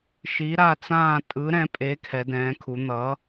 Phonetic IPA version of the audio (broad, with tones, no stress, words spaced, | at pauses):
ʃi˨˥ɾa˥˨t͡sãː˥˨ tʼɯ˨˥ɾɛ̃˨˥pʼe˨˥ kʰɛ˨˥dɛ̃ː˨˥kʰu˨˥ n̪ʌ˨˥